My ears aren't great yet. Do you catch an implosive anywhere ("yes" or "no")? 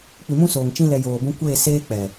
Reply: no